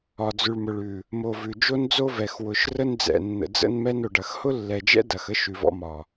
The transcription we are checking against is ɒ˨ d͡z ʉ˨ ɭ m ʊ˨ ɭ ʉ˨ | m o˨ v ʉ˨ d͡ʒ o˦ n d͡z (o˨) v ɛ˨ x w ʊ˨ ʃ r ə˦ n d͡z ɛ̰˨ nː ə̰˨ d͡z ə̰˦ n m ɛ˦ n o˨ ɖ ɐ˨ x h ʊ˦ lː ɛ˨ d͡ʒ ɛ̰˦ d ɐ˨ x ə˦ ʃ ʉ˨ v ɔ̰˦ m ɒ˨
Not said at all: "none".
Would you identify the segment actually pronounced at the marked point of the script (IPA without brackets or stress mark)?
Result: o˦